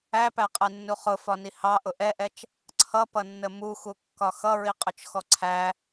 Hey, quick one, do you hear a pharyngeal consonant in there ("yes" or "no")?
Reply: no